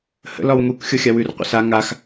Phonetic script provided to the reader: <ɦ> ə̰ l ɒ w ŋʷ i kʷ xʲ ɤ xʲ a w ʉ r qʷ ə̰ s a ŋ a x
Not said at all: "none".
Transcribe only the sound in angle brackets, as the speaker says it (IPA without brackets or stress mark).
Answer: h